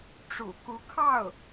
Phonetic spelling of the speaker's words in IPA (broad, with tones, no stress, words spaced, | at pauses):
ʈ͡ʂṵ˨˩ku˧˥kʰɑ˥˩ʊ̯